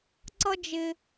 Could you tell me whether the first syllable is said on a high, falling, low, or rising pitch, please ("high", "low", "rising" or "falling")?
high